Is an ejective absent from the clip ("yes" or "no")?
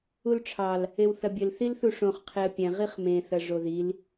yes